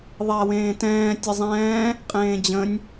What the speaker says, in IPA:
ðˤɛɐ̯wẽːtɛ̃ː tʲəzˤɛ̃ː | qʼẽːd͡ʑə̃nʲ

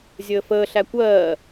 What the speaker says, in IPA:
zʲəːfəːɬæ kʷɜː

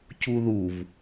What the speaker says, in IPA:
cuðuv

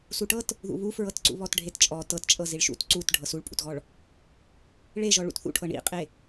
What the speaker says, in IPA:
suʈɤt | ðṵβufɹɤtǀṵ βɔtɖʱett͡ʃʼɔ tɤtt͡ʃʼɤ ziɭʃṵt ǀut ɖʱɤsuɭpʼṵtɣɔɭ | ɭeʒɔ ɭṵtθṵʈʰɤ ɳḭqʼe

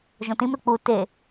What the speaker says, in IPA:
ʒõtĩmɾɯ k͡pu te

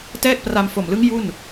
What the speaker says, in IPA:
tɛː˥˩k̚pra˧mfo˨˩mlɯ˦˥ŋ ju˥˩n

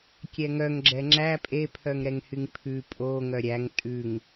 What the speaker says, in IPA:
kʲɛŋœŋ ɡ͡ǁɛŋ͡ǁæ pʼe pʰœŋɾɛŋhyŋpʰʉ pʼo ŋœɾʲæŋ tʼʉŋ

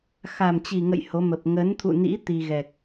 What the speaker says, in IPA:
xa˨˩mt͡ɕi˨˩ŋə̰˧˨j ho˨˦mə˨˩p̚ ŋə˨˦nt̪ʰṵ˧˨nḭ˧˥ t̪i˧ɣɛ˨˩k̚

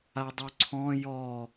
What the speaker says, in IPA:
adˤuǀʰɔ̃ jɔ

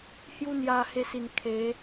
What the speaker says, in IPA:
hju˦n̪ja˧he˧si˨˩n kʰe˨˦

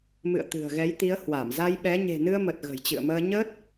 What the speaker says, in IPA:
mɨ̰˧˨ə̯t̪ɨ̤˨˩ə̯ɣɛ˨˦jt̪i˨˦ə̯ hwa˧˩mza˧jɓɛ˨˦ ɲe̤˨˩nɨ˧ə̯mə˨˩t̚ ɣə̤˨˩jt͡ɕɨ̰˧˨ə̯məː˧ ɲəː˦˥t̚

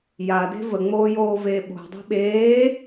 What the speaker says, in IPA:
jade̤ vəŋ͡moːjoːveː ɓo̤dˤi̤ ɓeː

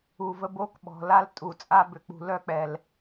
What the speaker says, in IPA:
u˨və˦bo˦k ɓɔ̤˨la˦l tʼu˨t͡sʼa˦ bʏ˨k͡pṳ˨ lœ˦k͡pɛ˨l

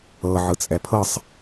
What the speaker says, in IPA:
ɤ ʕɯt͡sʼɛpʰɤsˤ

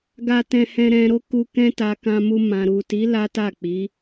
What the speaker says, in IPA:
ɡa˧tɛ̃˧hɛ̃˧ ɾɛ̃˧ɾo˦ku˧ kɛ̃˦ta˧ kã˧mu˧mã˨ ɾu˨ti˨˦ la˦ta˦˨k͡pi˨˦

